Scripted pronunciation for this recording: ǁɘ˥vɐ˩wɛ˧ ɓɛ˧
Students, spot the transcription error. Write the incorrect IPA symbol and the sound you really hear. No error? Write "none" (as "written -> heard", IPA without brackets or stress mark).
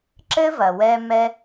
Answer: ɓ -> m